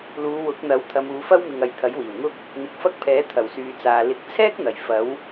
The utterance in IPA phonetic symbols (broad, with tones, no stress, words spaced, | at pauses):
luː˨˧wʊ˨˥k̚n̪ɐ˨˥w t̪ʰɐ˨˧muː˨˧fɐ˥wmɪ˨ŋ ɐ˨jt̪ʰɐ˨˥jwiː˨˩wŋʊ˥k̚ | n̪ɪ˨k̚fɐ˥k̚pʰɛː˨˥ t̪ʰɐ˨˩wsyː˨t͡saː˨ lɪ˨k̚t͡sʰɛː˥k̚n̪ɐ˨˩j fɐ˨˥w